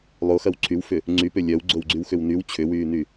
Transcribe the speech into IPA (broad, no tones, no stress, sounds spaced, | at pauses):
lˠ o x ɐ w ǀʰ y w f ʏ | ŋ͡ǀ y p ʏ lʲ œ w ɡ͡ǀ o w ɡ͡ǀ y w x ʏ w n y w t͡ɕʰ ʏ w yː n y